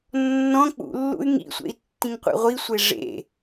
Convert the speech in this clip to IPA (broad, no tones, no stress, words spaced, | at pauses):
nːɔ̃ k͡pṵlːṵy̯ ŋḭsʷḛi̯tːĩŋ qʷḛʁʷisʷe ʐḛ